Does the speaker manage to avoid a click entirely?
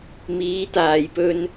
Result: yes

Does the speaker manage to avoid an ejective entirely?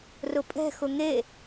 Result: no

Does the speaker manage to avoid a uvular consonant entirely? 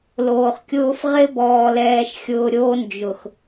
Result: no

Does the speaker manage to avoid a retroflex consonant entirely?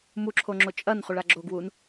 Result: no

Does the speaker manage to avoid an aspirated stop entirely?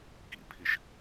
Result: no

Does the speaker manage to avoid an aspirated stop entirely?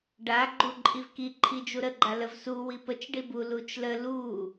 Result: no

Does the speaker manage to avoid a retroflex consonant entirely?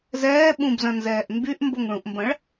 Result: no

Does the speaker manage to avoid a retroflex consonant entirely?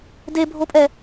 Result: yes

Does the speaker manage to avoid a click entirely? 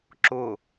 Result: no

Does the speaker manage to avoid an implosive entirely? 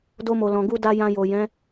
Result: yes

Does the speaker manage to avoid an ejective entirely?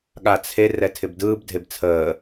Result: yes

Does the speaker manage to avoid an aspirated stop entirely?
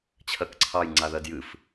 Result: no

